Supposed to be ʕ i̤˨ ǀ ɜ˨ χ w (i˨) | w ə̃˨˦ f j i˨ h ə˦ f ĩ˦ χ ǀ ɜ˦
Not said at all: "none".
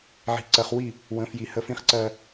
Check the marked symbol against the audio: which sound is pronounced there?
i˦˨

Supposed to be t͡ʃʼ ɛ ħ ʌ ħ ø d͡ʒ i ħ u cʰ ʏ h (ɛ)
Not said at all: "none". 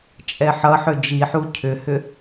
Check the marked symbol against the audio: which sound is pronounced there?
ʏ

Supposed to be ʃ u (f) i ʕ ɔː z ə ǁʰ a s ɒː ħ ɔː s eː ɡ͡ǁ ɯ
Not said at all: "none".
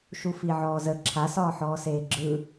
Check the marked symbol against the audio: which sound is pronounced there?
f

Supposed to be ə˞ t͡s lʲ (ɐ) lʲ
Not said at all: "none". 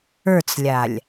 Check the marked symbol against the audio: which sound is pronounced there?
a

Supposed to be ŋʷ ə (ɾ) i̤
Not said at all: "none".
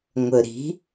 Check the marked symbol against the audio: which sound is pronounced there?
ɾ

